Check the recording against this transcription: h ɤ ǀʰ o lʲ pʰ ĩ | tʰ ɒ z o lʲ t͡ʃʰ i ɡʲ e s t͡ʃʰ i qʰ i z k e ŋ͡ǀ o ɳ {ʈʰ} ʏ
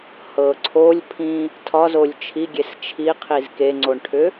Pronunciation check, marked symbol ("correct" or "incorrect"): correct